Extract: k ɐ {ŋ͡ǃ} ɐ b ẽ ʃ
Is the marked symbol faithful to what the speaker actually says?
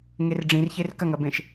no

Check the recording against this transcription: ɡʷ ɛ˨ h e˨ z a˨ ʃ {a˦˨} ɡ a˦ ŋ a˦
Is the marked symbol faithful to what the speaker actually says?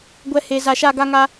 yes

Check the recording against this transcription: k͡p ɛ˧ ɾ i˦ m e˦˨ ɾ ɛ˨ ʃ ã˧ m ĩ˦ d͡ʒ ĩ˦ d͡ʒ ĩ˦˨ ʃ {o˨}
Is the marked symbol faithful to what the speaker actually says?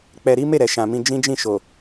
yes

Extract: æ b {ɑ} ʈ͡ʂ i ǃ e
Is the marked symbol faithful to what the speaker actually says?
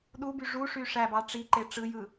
yes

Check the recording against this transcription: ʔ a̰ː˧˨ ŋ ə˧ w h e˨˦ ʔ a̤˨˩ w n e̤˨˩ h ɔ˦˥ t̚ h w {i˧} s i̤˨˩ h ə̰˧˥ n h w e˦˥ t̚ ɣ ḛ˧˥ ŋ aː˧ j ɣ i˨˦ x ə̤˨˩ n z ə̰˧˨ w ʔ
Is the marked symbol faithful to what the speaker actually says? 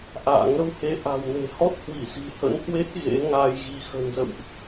no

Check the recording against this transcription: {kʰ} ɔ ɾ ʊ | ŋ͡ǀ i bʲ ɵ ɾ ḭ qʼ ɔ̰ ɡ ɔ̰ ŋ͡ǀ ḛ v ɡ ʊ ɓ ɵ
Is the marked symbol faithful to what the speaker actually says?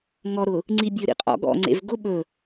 no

